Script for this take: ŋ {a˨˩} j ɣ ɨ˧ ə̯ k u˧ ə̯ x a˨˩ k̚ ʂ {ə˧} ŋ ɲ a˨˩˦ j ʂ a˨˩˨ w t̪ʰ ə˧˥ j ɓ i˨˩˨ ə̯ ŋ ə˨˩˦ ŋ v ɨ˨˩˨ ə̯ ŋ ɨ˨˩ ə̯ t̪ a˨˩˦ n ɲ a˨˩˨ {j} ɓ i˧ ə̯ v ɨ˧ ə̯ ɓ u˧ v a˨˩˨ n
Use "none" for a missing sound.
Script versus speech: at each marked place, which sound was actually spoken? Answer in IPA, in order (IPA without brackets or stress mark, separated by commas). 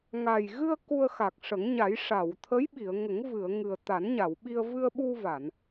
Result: a˨˩, ə˨˩˦, w